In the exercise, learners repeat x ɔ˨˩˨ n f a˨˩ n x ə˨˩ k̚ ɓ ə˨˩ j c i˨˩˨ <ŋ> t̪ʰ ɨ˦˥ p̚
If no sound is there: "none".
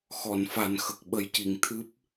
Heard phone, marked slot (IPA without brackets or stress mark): ŋ